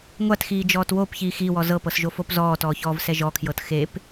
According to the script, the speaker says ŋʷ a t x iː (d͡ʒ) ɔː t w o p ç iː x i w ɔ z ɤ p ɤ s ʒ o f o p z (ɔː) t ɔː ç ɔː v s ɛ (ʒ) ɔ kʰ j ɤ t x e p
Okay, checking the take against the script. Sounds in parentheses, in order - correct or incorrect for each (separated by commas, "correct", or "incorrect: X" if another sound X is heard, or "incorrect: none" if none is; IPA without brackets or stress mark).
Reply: correct, correct, correct